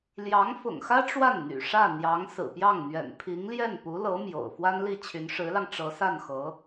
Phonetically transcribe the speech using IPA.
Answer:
l j ɑ˧˥ ŋ f ʊ̰˨˩ ŋ x ä˥ ʈ͡ʂ w a˥˩ n n̪ y̰˨˩ ʂ ä˥˩ n̪ j ɑ˧˥ ŋ s ɹ̩˨˩ p j ɑ˥˩ ŋ n̪ ɥ ɛ̰˨˩ n pʰ i˧˥ ŋ l j ɛ˥˩ n p u˧˥ l ɤ˧˥ m j o̰˨˩ ʊ̯ f w a˥ n l i˥˩ t͡ɕʰ y˧˥ n ʂ ɻ̩˧˥ l ɑ˧ ŋ ʈ͡ʂ ɤ˧˥ s a˥˩ n x ɤ˧˥

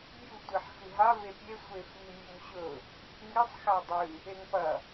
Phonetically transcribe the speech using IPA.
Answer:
bʲ u tʷ i ħ x ɨ ɦ a v e pʲ e sʷ e f i mʲ u m ɕ ɵ | ŋ i sˤ x a dˤ ɨ | e ŋ p ɐ

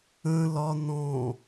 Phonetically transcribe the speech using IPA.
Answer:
ə̃ l ɒ n ɔ̃

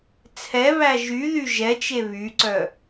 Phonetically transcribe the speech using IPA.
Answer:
t͡sʰ ɛ β æ ʒ y ð y ʒ ɛ t͡ʃ e β y ǀ œ

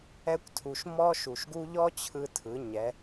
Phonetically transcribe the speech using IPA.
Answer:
ɛ˧ kʷ tʰ u˩ ʃ m ɔ˥ ʃ u˩ ʃ ɡ u˥ ʎ ɔ˥ t͡ɕʰ ɯ˧ tʰ ɯ˩˧ ɲ ɛ˩˧

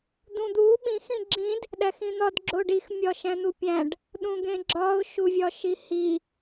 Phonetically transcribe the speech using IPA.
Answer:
d̪ ũ d̪ u ɓ ĩ x ĩ ɡ͡ǁ ĩ d | ɗ æ x ĩ n̪ ɒ d ɡ͡ǁ o ɖ i x mʲ ɒ ʃ æ̃ n̪ u pʲ æ̃ ɖ | ɗ ũ ɡ ẽ ɡ͡ǁ ɒ ʊ̯ ʃ u vʲ ɒ ʃ i h i

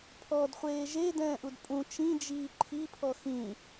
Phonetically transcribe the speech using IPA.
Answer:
pʰ ɔ d χʷ eː ʒ e d ɛ̃ː ʔ u d pʼ ũ t͡ʃ ĩ d͡ʒ iː ǃʰ i pʰ ɔ x ĩ

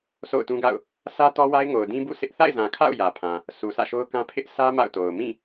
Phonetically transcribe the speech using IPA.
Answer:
s o̰˦˨ ʊ̯ t ũ˦ ɡ a̰˦˨ ʊ̯ | sʰ ä˦ t ɔ˦ w a˦ ɪ̯ ŋ o˨ ʊ̯ d ĩ˦ b ṵ˦˨ s ɪ˦ ʔ θ a̰˦˨ ɪ̯ z ã˨ kʰ a̰˦˨ ʊ̯ j ä˨ pʰ ã˨ | sʰ u˨ sʰ ä̰˦˨ ʃ o˦ ʊ̯ k ã˦ pʰ ɪ˦ ʔ sʰ ä˦ m a̰˦˨ ʊ̯ t o˨ ʊ̯ m ĩ˦˨

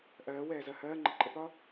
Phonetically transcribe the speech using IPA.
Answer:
ʔ ɜː w ɛː z ɜ h ɜː ŋ͡ǃ ə ǃʼ ə p ɒ

